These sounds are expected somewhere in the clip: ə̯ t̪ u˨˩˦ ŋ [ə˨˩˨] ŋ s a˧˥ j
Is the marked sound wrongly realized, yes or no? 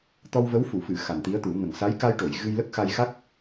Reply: yes